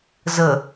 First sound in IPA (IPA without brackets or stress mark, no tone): z